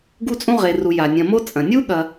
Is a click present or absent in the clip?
absent